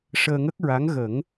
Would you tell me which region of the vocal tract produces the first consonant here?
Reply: retroflex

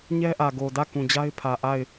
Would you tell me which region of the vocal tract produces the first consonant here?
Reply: palate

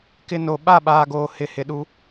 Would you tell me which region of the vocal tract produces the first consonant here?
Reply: velum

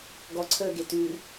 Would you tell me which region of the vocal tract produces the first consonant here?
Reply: velum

